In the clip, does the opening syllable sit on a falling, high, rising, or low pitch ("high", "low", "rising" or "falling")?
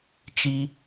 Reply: high